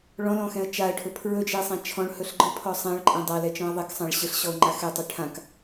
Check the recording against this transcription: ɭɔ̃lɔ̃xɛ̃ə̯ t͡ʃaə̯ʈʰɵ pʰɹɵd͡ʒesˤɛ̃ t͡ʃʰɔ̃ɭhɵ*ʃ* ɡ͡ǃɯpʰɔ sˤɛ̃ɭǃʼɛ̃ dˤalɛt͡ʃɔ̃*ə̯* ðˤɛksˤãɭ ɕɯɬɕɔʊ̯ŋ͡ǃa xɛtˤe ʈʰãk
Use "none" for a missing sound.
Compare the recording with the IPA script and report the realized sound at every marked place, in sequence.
ɬ, ə̯

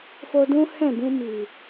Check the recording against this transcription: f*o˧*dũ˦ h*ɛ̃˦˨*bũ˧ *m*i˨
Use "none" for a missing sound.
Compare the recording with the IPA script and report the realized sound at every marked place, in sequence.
o˧, ɛ̃˦˨, m

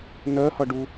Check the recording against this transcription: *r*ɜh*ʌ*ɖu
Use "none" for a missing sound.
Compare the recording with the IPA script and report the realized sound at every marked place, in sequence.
n, ʌ

